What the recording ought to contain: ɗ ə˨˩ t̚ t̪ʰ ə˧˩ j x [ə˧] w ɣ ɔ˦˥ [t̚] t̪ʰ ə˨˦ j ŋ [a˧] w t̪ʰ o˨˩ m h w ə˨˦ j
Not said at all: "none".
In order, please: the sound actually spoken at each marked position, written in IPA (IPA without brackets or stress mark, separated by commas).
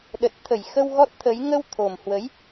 ə˧, t̚, ə˧